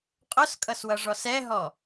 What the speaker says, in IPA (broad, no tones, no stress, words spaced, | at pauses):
qʼʊskʼʌswʌʐɔs ɛɦɔ